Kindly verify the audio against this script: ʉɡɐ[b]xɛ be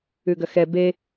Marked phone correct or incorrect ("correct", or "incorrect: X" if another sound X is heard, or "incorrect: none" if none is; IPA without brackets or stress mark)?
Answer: incorrect: none